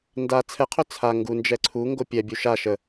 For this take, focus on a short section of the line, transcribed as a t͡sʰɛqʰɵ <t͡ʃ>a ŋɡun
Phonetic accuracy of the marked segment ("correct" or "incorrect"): incorrect